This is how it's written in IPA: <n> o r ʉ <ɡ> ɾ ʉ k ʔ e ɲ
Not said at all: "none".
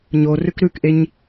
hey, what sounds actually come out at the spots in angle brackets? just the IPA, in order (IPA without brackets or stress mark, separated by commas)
ɲ, k